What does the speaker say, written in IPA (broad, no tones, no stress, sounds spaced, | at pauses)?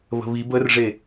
β ə̤ β i b ə r ʐ e